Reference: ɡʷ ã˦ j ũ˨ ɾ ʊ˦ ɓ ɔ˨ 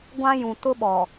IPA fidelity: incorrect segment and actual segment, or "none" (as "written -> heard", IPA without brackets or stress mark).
ɾ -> t